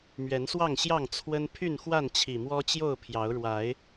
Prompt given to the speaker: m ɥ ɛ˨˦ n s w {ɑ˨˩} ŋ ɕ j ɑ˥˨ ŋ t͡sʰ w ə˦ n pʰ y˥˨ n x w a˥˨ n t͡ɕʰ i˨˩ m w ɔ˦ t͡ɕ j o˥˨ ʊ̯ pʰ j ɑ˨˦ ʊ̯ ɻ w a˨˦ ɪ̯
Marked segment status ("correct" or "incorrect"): incorrect